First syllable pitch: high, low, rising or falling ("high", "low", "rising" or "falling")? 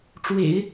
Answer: low